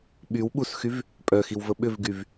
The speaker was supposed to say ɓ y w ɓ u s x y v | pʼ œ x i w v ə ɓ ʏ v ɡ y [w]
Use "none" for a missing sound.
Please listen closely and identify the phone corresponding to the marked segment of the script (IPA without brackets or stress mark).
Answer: v